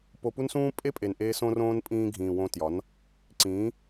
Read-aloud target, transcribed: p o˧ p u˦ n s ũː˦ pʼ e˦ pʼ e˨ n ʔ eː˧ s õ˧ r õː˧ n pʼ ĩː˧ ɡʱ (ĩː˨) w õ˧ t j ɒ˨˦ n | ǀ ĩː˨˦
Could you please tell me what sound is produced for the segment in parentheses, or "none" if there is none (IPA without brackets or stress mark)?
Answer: ĩː˨